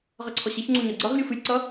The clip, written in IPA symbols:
ʁʌǀʰɔɕɛçŋ͡ǀu ɲɔɡ͡ǀʌʁlʲu fɨlʲǀʌ

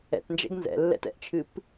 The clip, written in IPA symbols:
ɛ̰tnd͡ʒɛ̰ɡ nzɛ̰lːɛ̰tɛ̰ʔt͡ʃʰɨp

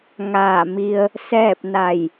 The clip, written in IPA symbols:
ŋaː˧˩mi˧ə̯ | sɛː˥˨p̚na˧˩j

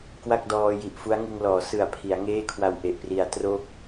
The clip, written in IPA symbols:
kwa˥˩k̚dɔː˧ji˨˩ʔ fu˦˥a̯ŋɯ˧ŋlɔː˩˦ sɯ˨˩a̯ pʰi˩˦a̯ŋeː˥˩kʰwa˧w ʔe˨˩ʔpri˨˩a̯ tro˦˥k̚

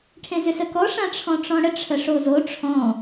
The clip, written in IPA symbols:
ʈʰẽzʏsəkɔ ʂãʈ͡ʂʰɔ̃ʈ͡ʂɔ̃ɽə ʈ͡ʂʰəʂozo ʈ͡ʂʰɔ̃

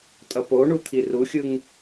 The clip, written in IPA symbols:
tʼʌpoɳut̪ʰi ruxʲɯŋ

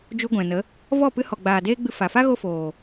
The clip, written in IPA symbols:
d͡ʒu˧ɡʷɛ̃˨nə˨˦ | vɔ˦˨pɨ˧ hɔ˨ɡ͡baː˨ deː˦ɡ͡bɨ˧ fa˨fa˦ ɣo˦foː˨

